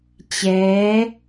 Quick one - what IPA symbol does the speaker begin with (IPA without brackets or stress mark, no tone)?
t͡ɕ